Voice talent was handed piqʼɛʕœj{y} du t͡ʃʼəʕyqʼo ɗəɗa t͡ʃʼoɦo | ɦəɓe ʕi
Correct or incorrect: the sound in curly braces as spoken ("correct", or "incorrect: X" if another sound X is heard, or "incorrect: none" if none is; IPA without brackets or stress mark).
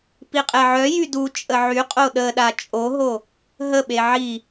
correct